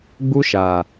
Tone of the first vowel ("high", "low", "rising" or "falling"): high